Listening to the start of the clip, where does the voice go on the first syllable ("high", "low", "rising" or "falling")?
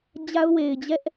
high